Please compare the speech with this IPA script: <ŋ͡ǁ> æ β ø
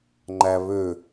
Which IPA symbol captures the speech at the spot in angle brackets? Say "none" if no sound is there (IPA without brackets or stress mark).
ŋ͡ǃ